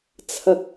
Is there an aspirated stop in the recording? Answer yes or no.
yes